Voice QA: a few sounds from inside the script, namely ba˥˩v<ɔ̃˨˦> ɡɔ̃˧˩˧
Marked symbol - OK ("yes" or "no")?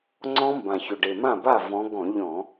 yes